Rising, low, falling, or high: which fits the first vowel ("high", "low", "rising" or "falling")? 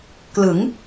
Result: rising